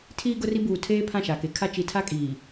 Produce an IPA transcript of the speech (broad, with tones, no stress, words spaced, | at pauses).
tʰiː˦ɡʊ˦ri˦ buː˨tʰeː˦ pʰã˦˨ʃa˨ke˨˦kʰa˦ t͡ʃi˨ tʰa˦kʼiː˨